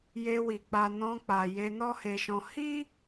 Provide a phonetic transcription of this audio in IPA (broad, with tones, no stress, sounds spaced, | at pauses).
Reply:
j e˧ w i˨ k͡p a˨ n ɔ̃˧ k͡p a˨ j e˧ n ɔ˦ h e˧ ʃ ɔ̃˧ h i˦